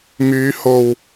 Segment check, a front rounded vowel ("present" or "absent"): present